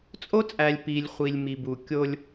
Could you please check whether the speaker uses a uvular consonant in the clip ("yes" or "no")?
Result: yes